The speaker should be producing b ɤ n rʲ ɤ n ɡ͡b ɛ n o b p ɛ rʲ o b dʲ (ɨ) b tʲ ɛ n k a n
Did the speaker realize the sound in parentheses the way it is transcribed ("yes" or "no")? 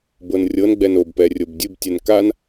yes